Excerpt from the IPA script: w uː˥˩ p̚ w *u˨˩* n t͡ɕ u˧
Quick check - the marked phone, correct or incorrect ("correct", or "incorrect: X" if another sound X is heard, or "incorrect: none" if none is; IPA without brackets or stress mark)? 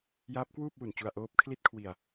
correct